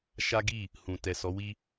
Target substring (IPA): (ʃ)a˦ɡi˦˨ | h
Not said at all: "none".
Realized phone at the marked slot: ʃ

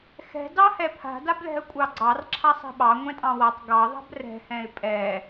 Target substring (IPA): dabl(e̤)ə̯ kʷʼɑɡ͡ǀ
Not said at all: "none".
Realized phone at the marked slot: ɛ̤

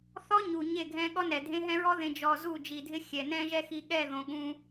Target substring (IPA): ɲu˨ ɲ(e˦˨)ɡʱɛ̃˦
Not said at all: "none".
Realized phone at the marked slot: e˦˨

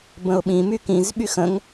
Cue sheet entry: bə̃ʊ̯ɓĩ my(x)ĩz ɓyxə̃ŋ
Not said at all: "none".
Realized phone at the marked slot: k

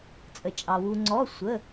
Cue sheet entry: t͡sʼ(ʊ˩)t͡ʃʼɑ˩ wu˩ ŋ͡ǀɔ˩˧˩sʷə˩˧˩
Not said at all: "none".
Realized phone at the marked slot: ə˩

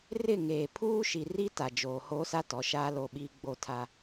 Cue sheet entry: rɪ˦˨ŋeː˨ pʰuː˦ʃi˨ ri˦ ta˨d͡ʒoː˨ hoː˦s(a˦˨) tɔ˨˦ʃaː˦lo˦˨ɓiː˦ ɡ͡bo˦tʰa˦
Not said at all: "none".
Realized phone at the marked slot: a˦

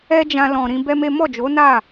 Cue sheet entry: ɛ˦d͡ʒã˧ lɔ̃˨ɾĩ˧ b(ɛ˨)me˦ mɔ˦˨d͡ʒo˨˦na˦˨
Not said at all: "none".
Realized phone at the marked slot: ɛ˦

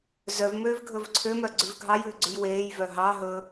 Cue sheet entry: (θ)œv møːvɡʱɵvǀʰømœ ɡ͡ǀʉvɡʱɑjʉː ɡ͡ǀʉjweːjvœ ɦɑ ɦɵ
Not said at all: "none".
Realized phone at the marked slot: z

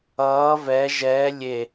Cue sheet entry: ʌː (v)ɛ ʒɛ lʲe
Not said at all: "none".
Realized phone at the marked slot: v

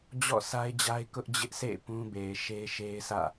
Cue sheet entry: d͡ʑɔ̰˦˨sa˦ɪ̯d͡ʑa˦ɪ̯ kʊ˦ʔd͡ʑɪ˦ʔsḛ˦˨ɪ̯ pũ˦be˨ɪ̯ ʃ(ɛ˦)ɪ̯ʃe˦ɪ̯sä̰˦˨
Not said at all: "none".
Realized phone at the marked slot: e˦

